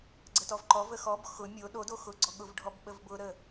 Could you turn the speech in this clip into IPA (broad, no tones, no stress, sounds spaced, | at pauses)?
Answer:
ɡ͡ǀ ə t ɔ v ǃ ɔ v ə x ɔ b x ʊ mʲ o ɗ o d o x ʊ ɡ͡ǀ ɔ ɠ ʊ v ɖʱ ɔ b ɓ ə v b ʊ ɾ ə